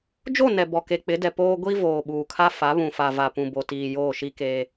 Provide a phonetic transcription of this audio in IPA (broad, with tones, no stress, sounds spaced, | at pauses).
d͡ʒ o˦˨ n ɛ˨ b ɔ˨ k e˨ k͡p ɪ˨˦ d ɛ˨ p oː˦ ɡʷ i˦ v oː˨ ɓ uː˨ kʰ a˦ f a˨˦ β ũ˨ f a˨ v a˨ p ũ˨ b o˨ t iː˨ j oː˦˨ ʃ i˦ k eː˦